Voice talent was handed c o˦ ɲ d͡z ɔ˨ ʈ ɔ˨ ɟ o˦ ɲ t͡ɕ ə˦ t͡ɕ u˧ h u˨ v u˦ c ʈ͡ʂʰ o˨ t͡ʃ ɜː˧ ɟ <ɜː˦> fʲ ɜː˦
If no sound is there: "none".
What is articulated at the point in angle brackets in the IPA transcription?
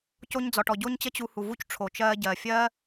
ɜː˨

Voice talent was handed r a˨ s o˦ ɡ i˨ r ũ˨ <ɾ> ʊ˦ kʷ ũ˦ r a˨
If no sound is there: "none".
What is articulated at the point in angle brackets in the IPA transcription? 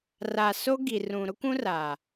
ɾ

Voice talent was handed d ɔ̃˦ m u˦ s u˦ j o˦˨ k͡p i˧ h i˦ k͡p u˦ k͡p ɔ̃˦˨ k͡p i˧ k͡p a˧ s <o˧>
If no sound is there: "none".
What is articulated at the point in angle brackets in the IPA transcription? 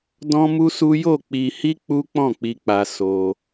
o˧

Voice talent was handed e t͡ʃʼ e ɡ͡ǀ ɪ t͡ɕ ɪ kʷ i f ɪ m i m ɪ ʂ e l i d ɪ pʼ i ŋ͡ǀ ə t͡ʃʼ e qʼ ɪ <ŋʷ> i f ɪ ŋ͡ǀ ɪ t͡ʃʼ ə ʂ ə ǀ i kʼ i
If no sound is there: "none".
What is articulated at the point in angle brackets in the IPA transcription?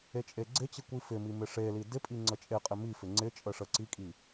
m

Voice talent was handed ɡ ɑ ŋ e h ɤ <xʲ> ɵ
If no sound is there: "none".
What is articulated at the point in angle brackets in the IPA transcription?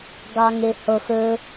x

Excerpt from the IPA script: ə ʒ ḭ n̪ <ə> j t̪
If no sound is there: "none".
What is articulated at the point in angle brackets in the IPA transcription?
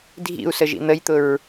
ə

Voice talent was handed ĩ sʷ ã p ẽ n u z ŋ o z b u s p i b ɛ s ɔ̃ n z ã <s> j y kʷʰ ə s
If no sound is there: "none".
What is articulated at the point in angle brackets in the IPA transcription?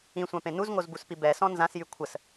s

